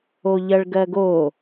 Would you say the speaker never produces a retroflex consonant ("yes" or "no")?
no